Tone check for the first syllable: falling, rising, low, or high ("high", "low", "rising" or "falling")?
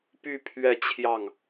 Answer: falling